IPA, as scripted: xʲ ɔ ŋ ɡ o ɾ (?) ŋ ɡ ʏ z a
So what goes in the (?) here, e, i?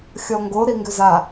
i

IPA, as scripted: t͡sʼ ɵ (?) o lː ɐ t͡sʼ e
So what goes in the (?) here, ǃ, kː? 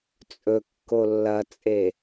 kː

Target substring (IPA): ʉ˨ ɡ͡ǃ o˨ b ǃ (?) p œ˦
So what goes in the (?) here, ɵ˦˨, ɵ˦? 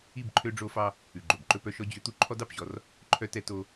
ɵ˦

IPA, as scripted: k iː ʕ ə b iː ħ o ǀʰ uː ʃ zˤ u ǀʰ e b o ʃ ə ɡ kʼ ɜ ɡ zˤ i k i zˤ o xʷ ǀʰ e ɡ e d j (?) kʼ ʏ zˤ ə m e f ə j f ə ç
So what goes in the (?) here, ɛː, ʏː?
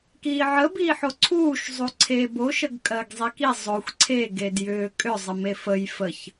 ʏː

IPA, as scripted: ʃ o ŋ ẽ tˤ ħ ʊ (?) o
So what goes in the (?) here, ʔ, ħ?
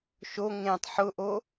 ʔ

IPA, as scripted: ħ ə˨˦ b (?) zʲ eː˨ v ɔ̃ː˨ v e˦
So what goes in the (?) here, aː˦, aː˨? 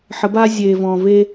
aː˦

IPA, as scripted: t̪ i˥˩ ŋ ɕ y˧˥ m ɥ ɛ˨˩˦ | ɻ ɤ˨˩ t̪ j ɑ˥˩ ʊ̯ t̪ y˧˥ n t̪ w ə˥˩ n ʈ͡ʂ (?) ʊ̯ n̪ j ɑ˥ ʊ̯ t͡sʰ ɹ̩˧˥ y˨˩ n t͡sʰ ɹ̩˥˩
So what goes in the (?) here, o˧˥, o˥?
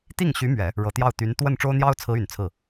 o˥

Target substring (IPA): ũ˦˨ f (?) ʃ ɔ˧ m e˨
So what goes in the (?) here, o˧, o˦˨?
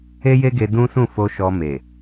o˧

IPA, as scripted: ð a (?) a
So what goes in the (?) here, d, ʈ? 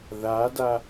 d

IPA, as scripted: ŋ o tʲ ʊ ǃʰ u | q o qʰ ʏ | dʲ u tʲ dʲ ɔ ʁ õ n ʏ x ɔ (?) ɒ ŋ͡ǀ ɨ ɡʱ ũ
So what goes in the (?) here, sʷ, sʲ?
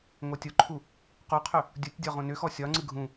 sʲ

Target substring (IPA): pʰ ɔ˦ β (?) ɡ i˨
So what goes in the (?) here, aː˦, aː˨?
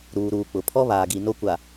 aː˨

